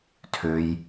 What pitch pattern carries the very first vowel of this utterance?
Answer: low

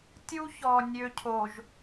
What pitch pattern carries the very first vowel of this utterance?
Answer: high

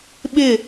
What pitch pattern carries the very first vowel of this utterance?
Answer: falling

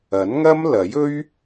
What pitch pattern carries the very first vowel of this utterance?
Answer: rising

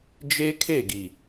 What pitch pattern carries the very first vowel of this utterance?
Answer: high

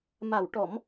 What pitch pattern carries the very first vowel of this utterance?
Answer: low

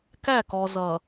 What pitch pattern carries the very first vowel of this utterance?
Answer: falling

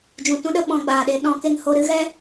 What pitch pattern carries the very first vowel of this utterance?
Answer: low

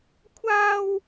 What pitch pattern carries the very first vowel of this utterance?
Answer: high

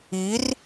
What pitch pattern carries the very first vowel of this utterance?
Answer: rising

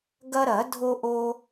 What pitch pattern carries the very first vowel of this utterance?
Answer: high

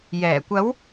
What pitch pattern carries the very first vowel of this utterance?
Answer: low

